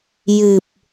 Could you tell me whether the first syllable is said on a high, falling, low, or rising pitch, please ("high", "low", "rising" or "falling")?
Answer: low